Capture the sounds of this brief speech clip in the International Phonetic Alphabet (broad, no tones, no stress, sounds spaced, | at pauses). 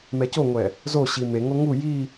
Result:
m ɛ c o ŋʷ ɛ | z o ɕ i m e ŋ o ŋ u j i